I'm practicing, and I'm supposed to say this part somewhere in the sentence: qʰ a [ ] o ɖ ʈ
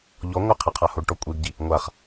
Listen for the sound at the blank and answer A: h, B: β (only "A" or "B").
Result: A